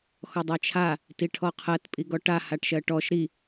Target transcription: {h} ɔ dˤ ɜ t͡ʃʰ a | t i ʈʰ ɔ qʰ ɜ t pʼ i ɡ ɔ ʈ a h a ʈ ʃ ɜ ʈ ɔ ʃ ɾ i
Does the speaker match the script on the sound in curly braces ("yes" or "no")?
no